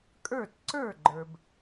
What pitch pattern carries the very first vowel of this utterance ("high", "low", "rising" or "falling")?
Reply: falling